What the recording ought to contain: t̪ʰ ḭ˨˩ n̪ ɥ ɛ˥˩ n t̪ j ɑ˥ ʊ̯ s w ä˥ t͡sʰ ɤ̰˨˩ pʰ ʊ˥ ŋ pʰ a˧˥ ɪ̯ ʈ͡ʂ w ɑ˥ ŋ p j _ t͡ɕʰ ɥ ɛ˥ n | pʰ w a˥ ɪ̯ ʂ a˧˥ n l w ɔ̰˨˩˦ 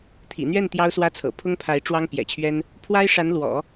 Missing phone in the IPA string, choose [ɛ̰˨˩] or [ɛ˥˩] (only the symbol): ɛ̰˨˩